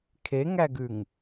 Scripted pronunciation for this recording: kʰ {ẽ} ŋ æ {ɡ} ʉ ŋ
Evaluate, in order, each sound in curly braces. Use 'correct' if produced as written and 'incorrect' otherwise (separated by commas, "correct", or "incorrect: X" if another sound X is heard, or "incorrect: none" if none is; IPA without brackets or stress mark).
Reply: incorrect: e, correct